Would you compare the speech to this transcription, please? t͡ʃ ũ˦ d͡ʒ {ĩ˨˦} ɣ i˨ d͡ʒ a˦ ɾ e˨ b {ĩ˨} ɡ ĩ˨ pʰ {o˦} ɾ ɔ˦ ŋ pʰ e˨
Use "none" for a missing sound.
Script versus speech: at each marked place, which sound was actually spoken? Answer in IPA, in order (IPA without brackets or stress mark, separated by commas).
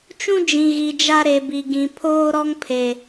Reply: ĩ˨, i˨, oː˦